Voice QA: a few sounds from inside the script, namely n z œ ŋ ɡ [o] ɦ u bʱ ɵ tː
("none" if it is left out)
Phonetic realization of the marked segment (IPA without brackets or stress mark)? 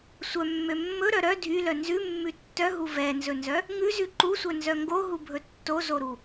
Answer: o